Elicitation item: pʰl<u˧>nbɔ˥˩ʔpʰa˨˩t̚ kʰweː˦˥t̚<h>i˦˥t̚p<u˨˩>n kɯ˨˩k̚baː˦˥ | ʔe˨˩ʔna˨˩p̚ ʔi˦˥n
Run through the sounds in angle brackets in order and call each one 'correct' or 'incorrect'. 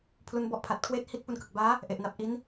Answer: incorrect: u˦˥, correct, incorrect: u˧

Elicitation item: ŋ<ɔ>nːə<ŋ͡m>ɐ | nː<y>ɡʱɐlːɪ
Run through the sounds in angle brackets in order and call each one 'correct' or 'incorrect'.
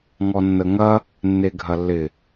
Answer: correct, incorrect: ŋ, incorrect: e

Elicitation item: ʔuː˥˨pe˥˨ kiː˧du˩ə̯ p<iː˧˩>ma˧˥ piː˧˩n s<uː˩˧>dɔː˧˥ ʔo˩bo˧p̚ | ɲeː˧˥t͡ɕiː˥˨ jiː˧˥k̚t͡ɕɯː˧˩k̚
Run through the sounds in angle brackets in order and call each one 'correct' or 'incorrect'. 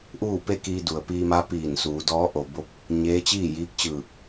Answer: incorrect: iː˧, correct

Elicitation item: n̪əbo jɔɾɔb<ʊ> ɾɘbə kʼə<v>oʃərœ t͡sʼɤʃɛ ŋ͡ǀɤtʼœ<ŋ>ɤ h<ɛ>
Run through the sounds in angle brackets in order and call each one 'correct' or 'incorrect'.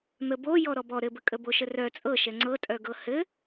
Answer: incorrect: ɔ, incorrect: b, incorrect: ɡ, incorrect: ɘ

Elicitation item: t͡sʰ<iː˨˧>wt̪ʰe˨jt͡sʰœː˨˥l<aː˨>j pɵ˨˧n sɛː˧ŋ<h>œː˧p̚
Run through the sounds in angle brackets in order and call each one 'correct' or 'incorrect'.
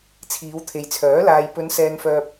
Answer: correct, incorrect: aː˧, incorrect: f

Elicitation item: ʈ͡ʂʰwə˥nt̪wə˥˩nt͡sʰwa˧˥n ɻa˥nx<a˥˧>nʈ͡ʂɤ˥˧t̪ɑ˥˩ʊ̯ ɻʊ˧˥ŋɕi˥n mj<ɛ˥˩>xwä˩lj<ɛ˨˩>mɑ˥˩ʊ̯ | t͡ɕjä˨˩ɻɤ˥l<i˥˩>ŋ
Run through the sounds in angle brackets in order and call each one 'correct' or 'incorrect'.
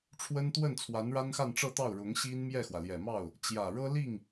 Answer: correct, correct, correct, correct

